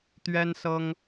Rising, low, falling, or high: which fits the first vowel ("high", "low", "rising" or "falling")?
high